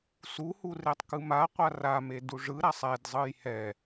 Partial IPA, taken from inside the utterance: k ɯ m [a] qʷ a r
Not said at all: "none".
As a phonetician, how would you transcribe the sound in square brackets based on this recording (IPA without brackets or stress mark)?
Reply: a